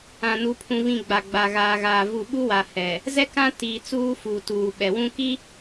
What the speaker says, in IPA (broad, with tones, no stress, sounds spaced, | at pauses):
ã˨ n u˨ pʰ ũ˨ v ĩ˨ ɡ͡b a˨ ɡ͡b a˨ ɣ aː˨ ɣ aː˨ v u˨ ɓ u˦ w a˨ h ɛ˨ | z ɛ˦ k ã˦ t iː˨ t͡s uː˦ f uː˨ t uː˨ ɓ ɛ˨ w ũ˦ k i˦